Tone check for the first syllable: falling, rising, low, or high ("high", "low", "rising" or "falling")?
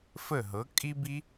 falling